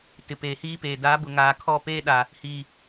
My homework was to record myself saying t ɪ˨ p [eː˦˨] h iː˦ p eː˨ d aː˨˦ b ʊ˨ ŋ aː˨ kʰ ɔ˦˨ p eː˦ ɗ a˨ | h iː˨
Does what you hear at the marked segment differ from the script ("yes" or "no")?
yes